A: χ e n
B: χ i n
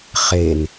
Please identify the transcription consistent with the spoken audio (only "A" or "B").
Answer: A